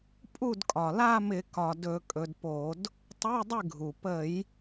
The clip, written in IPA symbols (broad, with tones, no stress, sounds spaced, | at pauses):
pʼ u˥˩ d kʼ ɒ˩ l a˥˧ m ɪ˧˩˧ k ɒ˩ d ɵ˧˩˧ kʼ ɵ˩˧ d p o˧˩˧ d | tˤ ə˧˥˧ j dˤ ɪ˥˩ ɡʱ u˩ p ə˧˩˧ j